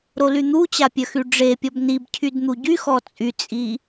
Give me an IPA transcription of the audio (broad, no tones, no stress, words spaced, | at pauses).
ɾolyn̪ut͡ɕa pʲœxyɖ͡ʐepʲɔb nibcʰyd n̪uɟyxɔ t͡sʼyt͡sʼi